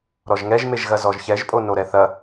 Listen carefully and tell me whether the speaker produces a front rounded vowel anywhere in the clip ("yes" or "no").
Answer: no